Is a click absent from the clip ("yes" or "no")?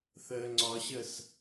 no